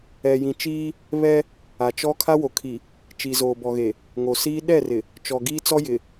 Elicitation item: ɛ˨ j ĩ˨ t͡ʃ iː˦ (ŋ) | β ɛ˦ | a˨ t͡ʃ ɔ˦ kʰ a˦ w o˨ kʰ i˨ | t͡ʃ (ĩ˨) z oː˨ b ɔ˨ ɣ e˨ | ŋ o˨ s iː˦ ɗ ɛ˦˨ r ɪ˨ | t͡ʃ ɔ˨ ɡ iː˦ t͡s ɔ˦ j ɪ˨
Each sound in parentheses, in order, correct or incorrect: incorrect, incorrect

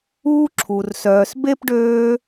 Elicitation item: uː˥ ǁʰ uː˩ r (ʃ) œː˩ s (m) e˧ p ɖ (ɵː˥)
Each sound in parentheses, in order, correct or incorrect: incorrect, incorrect, incorrect

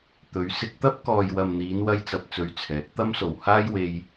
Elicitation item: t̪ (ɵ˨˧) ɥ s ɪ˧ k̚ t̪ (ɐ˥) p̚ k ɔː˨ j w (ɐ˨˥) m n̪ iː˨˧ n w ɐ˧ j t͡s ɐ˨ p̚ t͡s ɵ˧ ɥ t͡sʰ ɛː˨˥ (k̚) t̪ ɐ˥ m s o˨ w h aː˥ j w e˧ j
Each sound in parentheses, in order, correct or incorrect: correct, correct, incorrect, correct

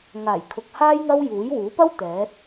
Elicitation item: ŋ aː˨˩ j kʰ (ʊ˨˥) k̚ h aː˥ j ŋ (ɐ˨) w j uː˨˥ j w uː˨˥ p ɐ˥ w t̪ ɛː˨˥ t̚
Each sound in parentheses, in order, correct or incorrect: incorrect, incorrect

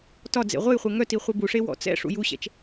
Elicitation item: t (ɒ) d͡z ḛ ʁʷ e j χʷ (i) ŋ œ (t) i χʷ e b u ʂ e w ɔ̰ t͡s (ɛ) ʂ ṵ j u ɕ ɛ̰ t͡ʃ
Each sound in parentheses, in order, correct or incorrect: correct, incorrect, correct, incorrect

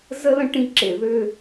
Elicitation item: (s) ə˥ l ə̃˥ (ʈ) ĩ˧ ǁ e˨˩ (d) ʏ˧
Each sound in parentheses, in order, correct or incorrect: incorrect, correct, incorrect

